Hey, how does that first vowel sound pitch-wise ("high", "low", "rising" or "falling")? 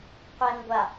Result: low